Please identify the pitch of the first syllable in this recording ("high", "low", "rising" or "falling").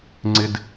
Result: low